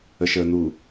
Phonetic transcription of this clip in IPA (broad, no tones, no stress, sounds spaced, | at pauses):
ə ʃ əː n̪ u